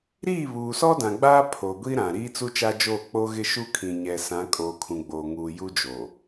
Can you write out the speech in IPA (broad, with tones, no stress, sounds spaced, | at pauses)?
ɾ iː˦˨ β uː˨ s ɔ˦ d ã˨ ɡ͡b aː˦ pʰ o˨ ɡʷ i˦ ɾ ã˨ ɾ iː˦ t͡s u˦ t͡ʃ a˦ d͡ʒ oː˦˨ k͡p o˦ ɣ ɪ˦ ʃ u˦ kʰ ĩ˨ ɲ ɛ˨ s ã˨˦ kʼ oː˨ kʰ ũ˨ ɡ͡b oː˨ ŋ uː˨ j u˦ d͡ʒ oː˨